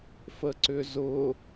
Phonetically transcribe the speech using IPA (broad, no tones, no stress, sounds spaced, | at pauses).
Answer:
f ə ǀ ʏ z ʊ